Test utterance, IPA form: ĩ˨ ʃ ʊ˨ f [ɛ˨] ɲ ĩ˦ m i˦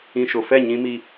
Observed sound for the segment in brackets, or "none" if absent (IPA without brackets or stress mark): ɛ˦˨